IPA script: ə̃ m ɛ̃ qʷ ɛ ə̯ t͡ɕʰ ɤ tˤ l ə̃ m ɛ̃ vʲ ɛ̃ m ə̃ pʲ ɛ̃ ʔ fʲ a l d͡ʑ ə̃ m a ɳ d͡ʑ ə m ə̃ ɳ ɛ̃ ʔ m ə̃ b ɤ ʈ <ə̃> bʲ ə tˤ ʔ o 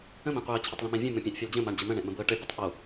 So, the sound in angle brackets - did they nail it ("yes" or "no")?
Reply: no